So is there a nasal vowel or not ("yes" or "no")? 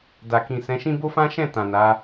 yes